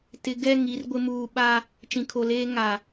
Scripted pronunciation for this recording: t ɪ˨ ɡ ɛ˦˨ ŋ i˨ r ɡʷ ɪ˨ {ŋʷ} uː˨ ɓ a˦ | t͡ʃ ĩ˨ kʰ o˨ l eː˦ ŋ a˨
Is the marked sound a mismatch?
yes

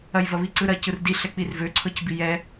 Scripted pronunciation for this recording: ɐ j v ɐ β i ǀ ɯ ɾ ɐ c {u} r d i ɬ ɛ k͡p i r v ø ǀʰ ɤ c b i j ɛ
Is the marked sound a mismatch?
yes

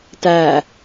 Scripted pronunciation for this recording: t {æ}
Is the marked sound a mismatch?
no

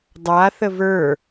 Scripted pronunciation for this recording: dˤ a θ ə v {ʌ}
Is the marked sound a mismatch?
yes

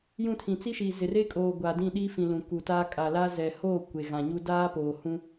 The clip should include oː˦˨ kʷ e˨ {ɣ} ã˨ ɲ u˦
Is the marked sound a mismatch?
no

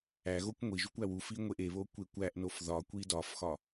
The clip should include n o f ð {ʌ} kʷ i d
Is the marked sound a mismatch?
yes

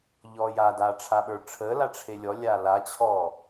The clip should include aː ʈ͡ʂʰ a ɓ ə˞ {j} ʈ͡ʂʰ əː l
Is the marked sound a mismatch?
yes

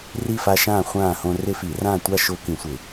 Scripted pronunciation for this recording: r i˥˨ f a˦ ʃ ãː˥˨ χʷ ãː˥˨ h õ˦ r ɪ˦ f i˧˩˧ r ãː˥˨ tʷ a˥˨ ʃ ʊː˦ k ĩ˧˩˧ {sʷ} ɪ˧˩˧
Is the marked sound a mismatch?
no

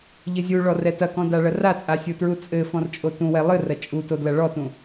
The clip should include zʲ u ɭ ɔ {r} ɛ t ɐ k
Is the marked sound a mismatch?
no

